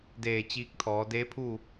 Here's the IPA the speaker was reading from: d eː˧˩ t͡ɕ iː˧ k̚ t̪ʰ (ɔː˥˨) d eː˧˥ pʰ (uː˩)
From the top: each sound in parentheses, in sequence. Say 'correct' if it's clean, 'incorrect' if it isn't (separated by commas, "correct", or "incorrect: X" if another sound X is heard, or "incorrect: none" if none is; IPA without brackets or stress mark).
incorrect: ɔː˩˧, incorrect: uː˥˨